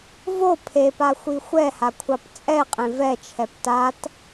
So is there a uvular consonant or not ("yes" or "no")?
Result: yes